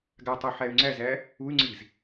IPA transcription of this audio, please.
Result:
ɡ a tˤ u ħ æ y̯ ŋ͡ǀ æ z æ | u y̯ ŋ͡ǀ i z

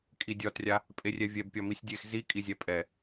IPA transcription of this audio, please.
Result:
kʼ i dʲ ɒ t rʲ a | pʼ e rʲ ɛ vʲ ɛ b pʲ ɒ m i sʲ dʲ e x z i kʼ i zʲ ɛ pʼ ɛ

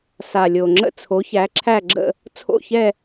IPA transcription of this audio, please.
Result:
s a˨˩ lʲ o˨˩ ŋ͡ǁ ə̰˥˧ t͡sʰ o˨˦ ç æ˨˦ ǁʰ æ˥˧ ɡ͡ǁ ə̰˥˧ | t͡sʰ o̰˥˧ ç ɛ˥˧

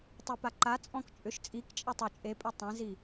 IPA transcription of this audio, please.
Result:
tˤ i p a ǃ a t͡sʼ ɔ̃ k t͡ʃʼ ʏ ʃ t͡sʼ i k t͡ʃʼ i tˤ u t͡ʃʼ e pʼ ø tˤ ẽ z i

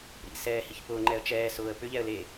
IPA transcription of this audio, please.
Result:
ɾ ḭ s ɛː h i ç p ʊː ŋ͡ǃ ɛ ə̯ t͡ʃ ɛː s ʊː ə̯ p ʏ ʎ ɛ ə̯ l e

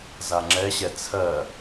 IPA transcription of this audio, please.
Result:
z a ŋ͡ǁ ɛ ɕ ɛ t͡sʰ ɜ

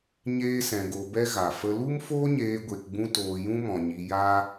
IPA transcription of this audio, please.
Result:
ɲ eː˦ s ɛ̃˧ ɡ o˧ b ɛ˦ ɣ a˨ f ə˧ l u˦ m f oː˦ ɲ eː˧ ɡʷ e˧ k ɡ͡b ũ˦ t oː˧ j ũ˦ m ɔ̃˨ ɲ i˧ j aː˦

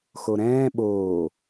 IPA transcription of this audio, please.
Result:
x o ɾ ɛ̃ː ɓ oː

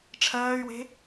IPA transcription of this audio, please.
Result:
ʈ͡ʂʰ ɜː y̯ w e̤

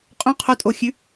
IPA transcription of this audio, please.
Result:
qʼ õ qʰ o tʼ o xʲ ʉ

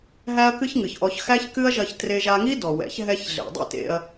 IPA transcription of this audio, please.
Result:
ɦ æ˦ ɐ̯ k ɨ˦ ç ŋ ɨ˨ ç ʔ ɔ˧ ç x æ˦ ç k ɨ˦ ɐ̯ ʒ ɐ˧ ç t r e˧ ʒ a˧ ŋ i˦ d ɔ˨ w ɛ̰˨˦ ç ɦ ɛ˧ ç ɮ ḛ˨ dˤ ɛ̰˦ t ḛ˧ ɐ̯

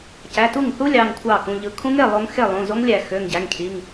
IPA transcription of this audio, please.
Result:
c æ˩˧˩ t u˥˩ ŋ θ u˦˥ lʲ ɑ˩˧˩ ŋ kʷʰ ɑ˥˩ k ũ˩˧˩ ʎ ɯ˧˩˧ kʰ ũ˦˥ ŋ e˩˧˩ lˠ o˦˥ ŋ x e˥˩ lˠ ũ˩˧˩ z o˦˥ ŋ lʲ æ˧˩˧ x ø˩˧˩ ŋ ɟ æ˩˧˩ ŋ cʰ i˩˧˩ ŋ

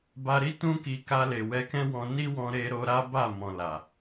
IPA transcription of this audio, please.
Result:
b a˧ ɾ i˦ t ũ˦ k i˧ k a˧ l e˨ w ɛ˧ k ɛ̃˦ w ɔ̃˧ n i˦ w ɔ̃˧ ɾ e˧ ɾ o˧ ɾ a˦ b a˦˨ m ɔ̃˨ l a˨

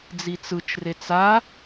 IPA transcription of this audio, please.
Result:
d͡z i t͡s ɯ t͡ʃ r e t͡s a

